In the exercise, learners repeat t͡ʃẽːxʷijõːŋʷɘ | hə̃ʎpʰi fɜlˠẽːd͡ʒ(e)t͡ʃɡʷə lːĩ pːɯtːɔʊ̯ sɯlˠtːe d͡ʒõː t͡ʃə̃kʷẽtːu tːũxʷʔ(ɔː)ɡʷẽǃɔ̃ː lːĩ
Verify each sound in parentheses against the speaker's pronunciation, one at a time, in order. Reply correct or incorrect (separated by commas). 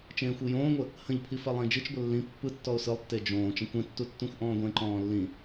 incorrect, incorrect